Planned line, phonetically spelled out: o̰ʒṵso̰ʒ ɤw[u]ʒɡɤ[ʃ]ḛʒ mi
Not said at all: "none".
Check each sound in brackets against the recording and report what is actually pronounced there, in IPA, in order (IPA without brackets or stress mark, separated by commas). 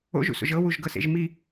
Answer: u, s